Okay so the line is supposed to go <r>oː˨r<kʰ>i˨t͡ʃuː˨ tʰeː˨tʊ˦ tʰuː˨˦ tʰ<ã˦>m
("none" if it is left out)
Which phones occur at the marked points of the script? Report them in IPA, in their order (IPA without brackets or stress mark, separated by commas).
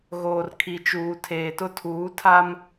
ɣ, kʰ, a˦